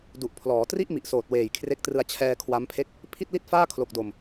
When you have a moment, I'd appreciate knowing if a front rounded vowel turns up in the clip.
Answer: no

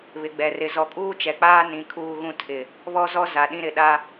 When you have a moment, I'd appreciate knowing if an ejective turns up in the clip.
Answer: yes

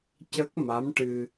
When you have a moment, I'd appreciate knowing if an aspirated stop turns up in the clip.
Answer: no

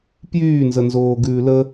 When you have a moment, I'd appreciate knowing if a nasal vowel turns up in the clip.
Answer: no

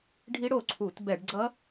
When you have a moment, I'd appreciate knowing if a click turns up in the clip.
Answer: yes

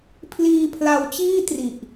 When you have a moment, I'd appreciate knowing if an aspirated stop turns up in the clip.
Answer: yes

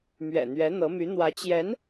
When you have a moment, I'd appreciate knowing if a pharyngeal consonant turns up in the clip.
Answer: no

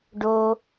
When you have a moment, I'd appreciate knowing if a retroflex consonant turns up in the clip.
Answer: yes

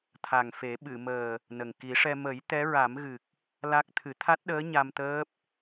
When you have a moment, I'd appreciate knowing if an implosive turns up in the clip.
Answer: yes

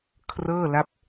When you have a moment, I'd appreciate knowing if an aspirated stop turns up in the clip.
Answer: yes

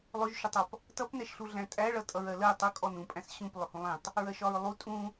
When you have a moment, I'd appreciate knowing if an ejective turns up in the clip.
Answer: yes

